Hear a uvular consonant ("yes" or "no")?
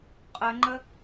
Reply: yes